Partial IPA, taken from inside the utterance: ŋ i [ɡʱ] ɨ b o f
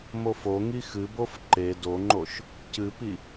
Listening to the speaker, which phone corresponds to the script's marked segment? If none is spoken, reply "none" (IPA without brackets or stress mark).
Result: x